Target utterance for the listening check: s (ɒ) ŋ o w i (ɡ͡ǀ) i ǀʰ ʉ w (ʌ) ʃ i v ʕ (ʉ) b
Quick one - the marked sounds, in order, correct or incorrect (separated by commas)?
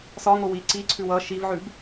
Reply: correct, incorrect, correct, correct